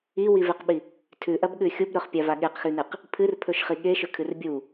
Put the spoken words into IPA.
iwiveqɓi | tʰʉʔɐbɠʉ xʲubɾɵχpʲava ɠeqxʉnɨq | pʰɨrpʰɵʃχi ɠeʃɵkʰɨr bʲu

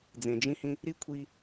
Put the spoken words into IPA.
d͡zẽ˩d͡ʒĩ˦hĩ˦ | ɾi˥kʷʰi˦

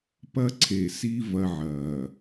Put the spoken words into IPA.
pɐ˦ǀʰe˨si˦ vɐ˦ʕɐː˨

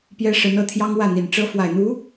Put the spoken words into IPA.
pjɛ˥ʂə˧˥n ɤ˥˩t̪ʰjɑ˥ŋwä˥˩n̪i˨˩n ʈ͡ʂɤ˥ fwa˨˩ɪ̯n̪u˧˥

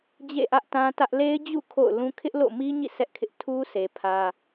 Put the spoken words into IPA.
d͡ʑḛ˦˨ʔä˦ʔtã˦tä˦ʔ le˦ɪ̯d͡ʑṵ˦˨ kʰo̰˦˨ʊ̯ lũ˦ kʰɪ˦ʔlo̰˦˨mi˦ɲḭ˦˨ sʰɛ˦ʔkʰɪ˦ʔ tʰu˦sʰe˨ pʰä˦

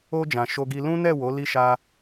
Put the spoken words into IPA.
o˧d͡ʒã˨ ʃo˧ɡi˧lũ˦ nɛ˦˨wo˨˦ li˧ʃa˧

